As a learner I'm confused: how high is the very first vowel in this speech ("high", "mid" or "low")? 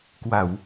low